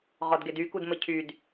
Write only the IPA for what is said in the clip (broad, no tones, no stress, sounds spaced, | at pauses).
ʁ ɔ d ɡ e d y k u d m ə cʰ y d